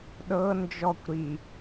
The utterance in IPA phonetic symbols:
ɗɤ nd͡ʒɔkʷ ɾi

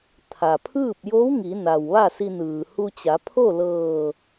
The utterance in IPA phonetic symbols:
t̪ʰa˩pʰɯː˥˨p̚jo˧˥w ŋi˩˧ na˩wʋa˥˨si˧nɯː˩ hu˧t͡ɕa˩˧pʰo˥˨ lɤː˧˩

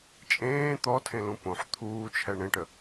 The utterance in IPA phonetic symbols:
t͡ʃʼẽː t̪ɔtʰẽlũ põħ t̪ʰuːt͡ʃʰɛ ɳẽʈə

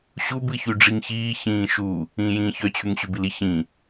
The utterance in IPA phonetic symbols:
ɕub ɨçyɖ͡ʐiŋçiː çĩːʃu | ĩːjĩːçœ t͡ɕʰyŋɕybili çĩ

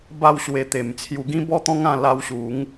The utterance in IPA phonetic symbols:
ba˥˧wɕwe˧ t̪e˨˩mt͡sʰju˧ɡĩ˦ bɔ˦t̪ɔ̃˦ŋã˧ la˧wɕu˨˦ŋ

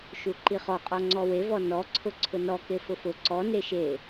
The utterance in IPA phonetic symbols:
ʃuǃiχɔqʼɔ ŋ͡ǀɔwevɔ nɔ ǀʰʊǀʰʊnɔ kefʊfʊ ǀɔ neʃe

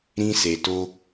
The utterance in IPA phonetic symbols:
ɾĩ˦se˧to˦

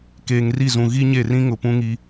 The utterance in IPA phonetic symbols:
keː˨ŋri˦˨zũ˨ ɣi˦ɲe˦˨rĩ˦ŋʊ˨ pũ˦ŋi˦

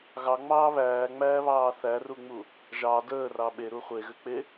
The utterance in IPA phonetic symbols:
ɣɑŋ͡mɑː βæːŋ͡mæːβɑː θæruŋ͡mu | ʒɑ dəːrɑ ɓeɾu χʷeɣʏk͡pe

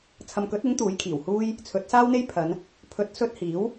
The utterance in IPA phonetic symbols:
t͡sʰɐ˨mkɵ˨˥t̚ɪ˨˥ŋ t̪uː˨˥jkʰiː˨˩whuː˥j | t͡sʰɵ˨˥t̚ saː˥wn̪e˥j pʰɐ˨˧n | pʰɵ˨˥t̚sɵ˧t̚ hiː˨˥w

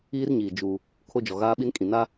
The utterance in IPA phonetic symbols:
iː˦rɲiː˨ d͡ʒuː˦ | kʰo˦d͡ʒɔ˨ɣaː˦ɓi˦n kʼĩ˨na˦

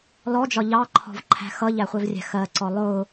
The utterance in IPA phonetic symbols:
lɔd͡ʒɒ ʎɑǃʰɔ̤vǃʰæ̤ xʌʎæχʷɛvrʲæ̤ xɜǀɔ lˠʊː

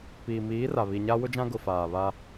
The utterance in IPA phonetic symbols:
piː˨miː˨˦ra˨ βi˨ɲa˦ wʊ˦d͡ʒã˦ ɡʊ˨ faː˨βa˦

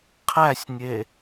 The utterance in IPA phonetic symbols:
qʰæsʲnʲe

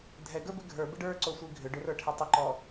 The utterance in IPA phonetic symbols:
dʱɛɡə˞bɪ ɡʱə˞bɪɖ ə˞ǀosʷi ɡʱʏɖʏrə˞ʈʰɪ tˤʏǃɔ

